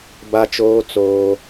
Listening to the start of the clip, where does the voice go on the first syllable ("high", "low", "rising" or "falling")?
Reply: high